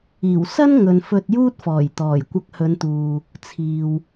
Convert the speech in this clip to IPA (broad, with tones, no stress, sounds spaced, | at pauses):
iː˨˩ w s ɐ˥ n ŋ ɵ˨ n f ɵ˧ t̚ j uː˥ t̚ f ɔː˨˩ j t̪ ɔː˨˩ j kʷ ɐ˧ k̚ h ɵ˨˧ n t̪ uː˨ | t͡sʰ iː˨ w